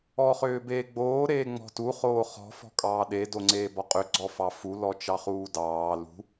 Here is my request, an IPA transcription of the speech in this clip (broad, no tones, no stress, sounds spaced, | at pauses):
ɔ χ ʏː b eː ɡ͡b oː ɾ eː ŋ͡m ɔ̤ t u χ oː χ ɔ̤ f ɔ̤ kʼ ɑː ɗ e d o ŋ͡ǀ eː b ɔ qʼ ʏ ɡ͡ǀ ɔ f ɑ f u l ɔ t͡ʃ ɑ χ uː d ɑː l ṳ